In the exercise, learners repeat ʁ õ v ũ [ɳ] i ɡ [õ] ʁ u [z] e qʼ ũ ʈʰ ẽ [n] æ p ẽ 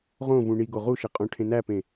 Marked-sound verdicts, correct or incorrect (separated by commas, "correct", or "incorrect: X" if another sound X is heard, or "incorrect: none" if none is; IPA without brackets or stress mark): correct, incorrect: o, incorrect: ʃ, correct